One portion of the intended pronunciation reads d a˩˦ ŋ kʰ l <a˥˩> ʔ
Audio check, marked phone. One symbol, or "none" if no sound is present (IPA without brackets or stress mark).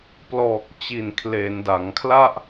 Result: a˥˩